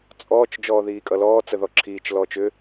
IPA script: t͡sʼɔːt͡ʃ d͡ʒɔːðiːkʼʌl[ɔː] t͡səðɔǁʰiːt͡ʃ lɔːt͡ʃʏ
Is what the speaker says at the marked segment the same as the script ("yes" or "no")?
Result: yes